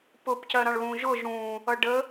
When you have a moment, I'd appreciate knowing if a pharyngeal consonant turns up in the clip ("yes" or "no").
no